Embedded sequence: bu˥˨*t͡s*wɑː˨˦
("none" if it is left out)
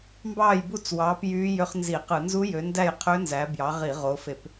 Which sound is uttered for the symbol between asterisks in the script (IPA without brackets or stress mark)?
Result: t͡s